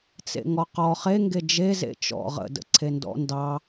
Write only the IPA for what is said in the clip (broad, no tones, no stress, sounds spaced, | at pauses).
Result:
t͡s ḛ ŋ ɔ q ɔ χ e ŋ ɡ e d͡ʒ e z ḛ t͡ʃ ɔ̰ ʁ ə̰ d ə̰ ǀʰ e n d ɔ̰ n d ɑ